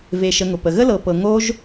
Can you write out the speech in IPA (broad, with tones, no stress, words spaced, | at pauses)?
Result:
ve˨ ʃə˨ŋʊ˩ pə˩ɣə˥lɤ˨ pɤ˨ ŋo˦ʒ